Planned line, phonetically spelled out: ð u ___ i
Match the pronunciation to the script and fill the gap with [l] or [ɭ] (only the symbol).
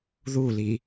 l